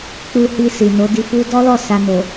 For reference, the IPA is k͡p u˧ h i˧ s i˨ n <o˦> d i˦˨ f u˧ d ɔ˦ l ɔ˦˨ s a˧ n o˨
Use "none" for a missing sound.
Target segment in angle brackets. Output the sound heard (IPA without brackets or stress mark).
o˨˦